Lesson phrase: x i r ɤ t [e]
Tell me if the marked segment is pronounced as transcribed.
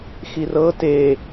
yes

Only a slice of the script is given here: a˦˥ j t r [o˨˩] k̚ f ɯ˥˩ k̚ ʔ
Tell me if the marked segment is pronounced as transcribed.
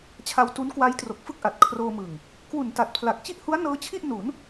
yes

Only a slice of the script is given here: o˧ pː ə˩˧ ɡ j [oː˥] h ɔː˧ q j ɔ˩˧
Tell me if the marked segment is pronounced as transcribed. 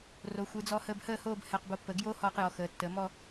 yes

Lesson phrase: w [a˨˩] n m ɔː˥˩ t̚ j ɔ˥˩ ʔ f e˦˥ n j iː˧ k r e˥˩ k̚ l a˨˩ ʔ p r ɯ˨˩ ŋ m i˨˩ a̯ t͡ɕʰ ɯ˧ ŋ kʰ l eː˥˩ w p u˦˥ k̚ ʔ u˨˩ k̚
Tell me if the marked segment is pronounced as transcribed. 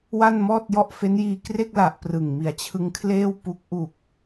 no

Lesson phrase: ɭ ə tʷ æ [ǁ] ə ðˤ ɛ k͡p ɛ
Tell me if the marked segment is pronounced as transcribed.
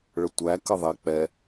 no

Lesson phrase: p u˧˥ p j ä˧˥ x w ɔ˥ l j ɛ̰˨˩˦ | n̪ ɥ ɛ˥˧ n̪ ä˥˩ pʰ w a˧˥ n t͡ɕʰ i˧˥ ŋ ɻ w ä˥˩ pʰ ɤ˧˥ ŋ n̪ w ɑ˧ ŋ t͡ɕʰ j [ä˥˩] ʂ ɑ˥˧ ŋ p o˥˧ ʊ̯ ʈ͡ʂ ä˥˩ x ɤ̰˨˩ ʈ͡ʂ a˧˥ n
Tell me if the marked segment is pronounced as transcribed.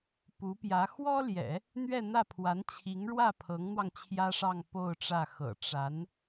no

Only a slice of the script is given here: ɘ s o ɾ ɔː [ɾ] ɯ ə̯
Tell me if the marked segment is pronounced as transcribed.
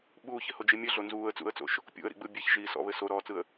no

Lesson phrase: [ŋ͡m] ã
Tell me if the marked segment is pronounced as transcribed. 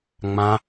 yes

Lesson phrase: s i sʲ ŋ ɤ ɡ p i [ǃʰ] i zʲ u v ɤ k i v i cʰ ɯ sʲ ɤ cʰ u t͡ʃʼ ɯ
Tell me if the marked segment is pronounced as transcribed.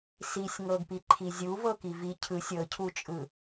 yes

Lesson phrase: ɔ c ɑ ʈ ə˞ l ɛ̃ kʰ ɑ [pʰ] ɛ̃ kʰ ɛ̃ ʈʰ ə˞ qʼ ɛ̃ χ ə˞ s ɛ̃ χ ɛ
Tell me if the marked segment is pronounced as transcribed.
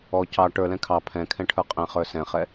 yes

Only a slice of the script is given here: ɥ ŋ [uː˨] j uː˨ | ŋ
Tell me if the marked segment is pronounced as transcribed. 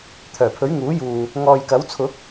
no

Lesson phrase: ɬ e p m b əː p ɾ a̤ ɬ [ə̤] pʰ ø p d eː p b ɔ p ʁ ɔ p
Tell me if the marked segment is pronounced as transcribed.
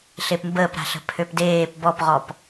yes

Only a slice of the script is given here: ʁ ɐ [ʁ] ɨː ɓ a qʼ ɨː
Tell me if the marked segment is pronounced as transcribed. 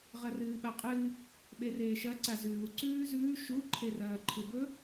no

